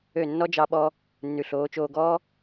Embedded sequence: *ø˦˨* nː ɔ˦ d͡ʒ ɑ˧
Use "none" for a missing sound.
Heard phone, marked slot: ø˦˨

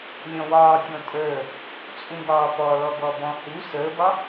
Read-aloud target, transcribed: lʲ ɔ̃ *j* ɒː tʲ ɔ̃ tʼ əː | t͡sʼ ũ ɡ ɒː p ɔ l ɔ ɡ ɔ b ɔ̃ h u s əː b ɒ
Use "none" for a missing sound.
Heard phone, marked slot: w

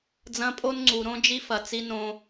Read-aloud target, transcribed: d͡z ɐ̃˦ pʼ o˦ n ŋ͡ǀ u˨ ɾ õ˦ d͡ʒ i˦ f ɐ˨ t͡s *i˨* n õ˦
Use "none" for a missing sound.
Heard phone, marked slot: i˦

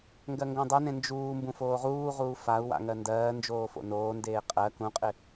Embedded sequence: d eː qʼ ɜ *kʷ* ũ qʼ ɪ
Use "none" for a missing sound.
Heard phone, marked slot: k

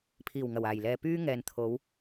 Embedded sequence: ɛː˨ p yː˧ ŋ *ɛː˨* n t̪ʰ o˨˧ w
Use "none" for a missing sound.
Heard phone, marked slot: ɛː˨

